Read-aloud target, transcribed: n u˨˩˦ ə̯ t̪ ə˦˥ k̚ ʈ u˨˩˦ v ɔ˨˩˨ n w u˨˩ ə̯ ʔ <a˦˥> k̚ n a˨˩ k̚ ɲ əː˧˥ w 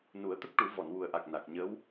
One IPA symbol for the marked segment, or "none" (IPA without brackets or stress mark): a˨˩